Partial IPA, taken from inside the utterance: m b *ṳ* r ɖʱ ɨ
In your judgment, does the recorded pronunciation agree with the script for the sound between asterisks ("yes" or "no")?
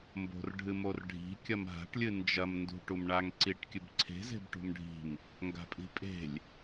no